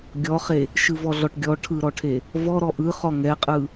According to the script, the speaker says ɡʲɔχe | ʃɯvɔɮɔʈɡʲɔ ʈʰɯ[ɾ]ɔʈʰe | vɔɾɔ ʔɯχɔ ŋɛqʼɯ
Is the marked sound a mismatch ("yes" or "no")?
no